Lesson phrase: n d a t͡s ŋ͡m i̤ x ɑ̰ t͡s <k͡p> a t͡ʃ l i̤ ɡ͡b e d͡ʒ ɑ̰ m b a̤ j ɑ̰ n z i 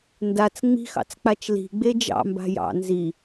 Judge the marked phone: correct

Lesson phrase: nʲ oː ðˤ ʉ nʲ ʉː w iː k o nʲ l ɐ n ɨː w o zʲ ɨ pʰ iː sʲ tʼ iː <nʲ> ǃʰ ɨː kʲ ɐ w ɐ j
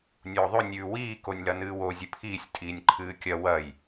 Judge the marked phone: correct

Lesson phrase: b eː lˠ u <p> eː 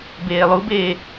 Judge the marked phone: incorrect: b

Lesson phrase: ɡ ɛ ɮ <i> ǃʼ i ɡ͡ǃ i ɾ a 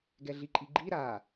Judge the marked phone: correct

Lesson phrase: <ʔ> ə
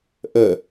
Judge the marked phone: correct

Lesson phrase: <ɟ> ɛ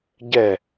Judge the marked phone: correct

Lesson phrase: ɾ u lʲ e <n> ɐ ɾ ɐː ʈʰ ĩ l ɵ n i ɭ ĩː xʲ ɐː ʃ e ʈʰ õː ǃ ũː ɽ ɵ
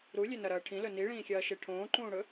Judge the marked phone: correct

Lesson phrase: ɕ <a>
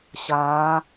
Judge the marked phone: incorrect: aː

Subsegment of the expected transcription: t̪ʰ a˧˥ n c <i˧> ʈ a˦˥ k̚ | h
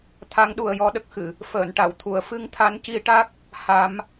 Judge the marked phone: correct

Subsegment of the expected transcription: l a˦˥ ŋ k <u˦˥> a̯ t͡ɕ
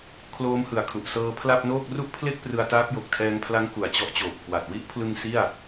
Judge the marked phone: incorrect: u˨˩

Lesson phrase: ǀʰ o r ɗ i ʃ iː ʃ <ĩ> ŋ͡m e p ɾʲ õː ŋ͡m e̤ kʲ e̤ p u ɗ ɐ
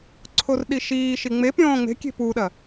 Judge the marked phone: incorrect: i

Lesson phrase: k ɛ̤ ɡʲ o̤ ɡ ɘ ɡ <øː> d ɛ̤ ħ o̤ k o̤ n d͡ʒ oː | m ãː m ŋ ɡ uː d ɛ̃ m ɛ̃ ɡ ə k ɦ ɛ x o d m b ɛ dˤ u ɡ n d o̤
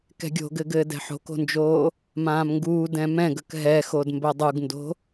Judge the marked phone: incorrect: ɘː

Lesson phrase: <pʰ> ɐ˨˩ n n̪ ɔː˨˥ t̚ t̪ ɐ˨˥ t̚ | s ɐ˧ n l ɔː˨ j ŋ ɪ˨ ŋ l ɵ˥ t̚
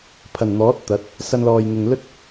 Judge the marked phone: correct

